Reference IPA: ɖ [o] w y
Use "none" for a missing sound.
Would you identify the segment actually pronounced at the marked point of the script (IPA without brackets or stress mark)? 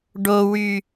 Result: o